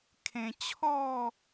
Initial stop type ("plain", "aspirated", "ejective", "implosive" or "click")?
aspirated